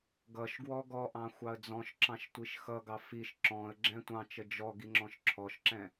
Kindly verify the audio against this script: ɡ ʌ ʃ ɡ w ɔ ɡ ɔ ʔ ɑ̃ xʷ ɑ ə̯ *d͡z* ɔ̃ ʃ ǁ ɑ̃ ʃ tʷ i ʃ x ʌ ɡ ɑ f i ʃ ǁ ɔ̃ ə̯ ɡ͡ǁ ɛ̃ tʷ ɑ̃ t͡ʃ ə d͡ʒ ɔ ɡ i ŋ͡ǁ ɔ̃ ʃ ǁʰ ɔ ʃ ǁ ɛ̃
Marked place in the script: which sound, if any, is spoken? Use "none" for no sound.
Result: d͡z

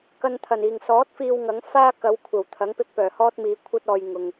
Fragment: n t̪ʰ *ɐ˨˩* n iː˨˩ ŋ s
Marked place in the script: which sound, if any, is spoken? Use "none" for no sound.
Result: ɐ˨˩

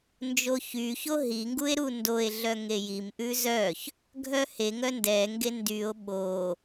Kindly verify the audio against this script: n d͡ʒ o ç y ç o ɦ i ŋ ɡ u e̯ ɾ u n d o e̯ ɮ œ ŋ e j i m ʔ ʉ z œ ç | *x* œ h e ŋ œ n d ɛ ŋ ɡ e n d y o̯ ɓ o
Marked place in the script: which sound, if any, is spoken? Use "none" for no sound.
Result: ɡʱ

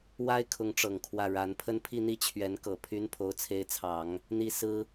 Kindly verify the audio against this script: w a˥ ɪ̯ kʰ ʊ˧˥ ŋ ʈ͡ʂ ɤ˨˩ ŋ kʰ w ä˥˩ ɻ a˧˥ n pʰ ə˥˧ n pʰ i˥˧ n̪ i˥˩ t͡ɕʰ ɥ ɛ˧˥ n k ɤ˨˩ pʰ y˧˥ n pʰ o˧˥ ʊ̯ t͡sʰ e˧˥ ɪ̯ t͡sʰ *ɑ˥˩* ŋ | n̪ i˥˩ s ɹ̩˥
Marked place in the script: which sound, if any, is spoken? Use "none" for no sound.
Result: ɑ˨˩˦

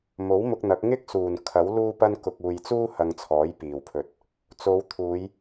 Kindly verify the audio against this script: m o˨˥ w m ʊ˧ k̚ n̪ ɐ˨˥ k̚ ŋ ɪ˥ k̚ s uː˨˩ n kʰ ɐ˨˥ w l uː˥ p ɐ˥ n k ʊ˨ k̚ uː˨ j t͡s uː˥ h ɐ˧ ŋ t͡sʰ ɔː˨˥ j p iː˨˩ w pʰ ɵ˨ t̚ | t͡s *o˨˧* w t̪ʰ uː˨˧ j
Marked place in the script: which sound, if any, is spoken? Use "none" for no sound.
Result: o˨˧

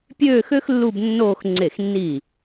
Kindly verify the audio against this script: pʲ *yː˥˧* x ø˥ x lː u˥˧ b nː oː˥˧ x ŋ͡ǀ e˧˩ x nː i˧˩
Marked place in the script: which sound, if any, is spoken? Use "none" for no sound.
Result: øː˥˧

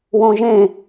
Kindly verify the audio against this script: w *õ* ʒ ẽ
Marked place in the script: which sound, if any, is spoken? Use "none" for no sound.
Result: õ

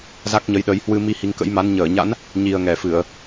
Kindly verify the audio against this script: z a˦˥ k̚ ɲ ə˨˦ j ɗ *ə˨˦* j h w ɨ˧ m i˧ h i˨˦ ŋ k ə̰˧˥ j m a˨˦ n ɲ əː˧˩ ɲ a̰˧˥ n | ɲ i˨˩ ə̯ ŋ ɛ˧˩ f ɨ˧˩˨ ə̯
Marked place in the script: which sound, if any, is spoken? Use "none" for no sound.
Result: ə˨˦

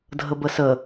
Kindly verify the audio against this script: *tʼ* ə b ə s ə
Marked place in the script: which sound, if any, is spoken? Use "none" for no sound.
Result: dʱ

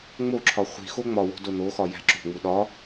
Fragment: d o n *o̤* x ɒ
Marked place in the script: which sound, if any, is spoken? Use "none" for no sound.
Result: o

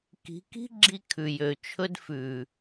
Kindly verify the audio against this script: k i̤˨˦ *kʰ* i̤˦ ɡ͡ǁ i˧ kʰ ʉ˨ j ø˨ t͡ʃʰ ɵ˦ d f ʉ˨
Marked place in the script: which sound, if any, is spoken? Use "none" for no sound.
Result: k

